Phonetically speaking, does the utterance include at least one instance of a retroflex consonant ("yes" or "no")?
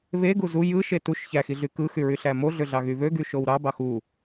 no